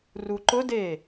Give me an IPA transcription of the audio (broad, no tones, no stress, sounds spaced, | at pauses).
r u ǃ ʊ d e